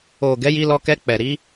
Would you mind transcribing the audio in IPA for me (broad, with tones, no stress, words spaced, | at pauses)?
o˨ ɡɛ˨˦ji˧lɔ˧ kɛ˧k͡pɛ˨ɾi˨˦